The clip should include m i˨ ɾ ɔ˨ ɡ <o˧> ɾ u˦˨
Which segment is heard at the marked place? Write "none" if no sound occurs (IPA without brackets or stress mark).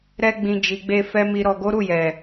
o˨˦